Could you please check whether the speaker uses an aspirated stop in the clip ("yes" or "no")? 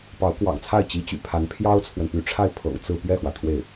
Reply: yes